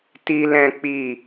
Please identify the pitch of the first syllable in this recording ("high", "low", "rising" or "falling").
high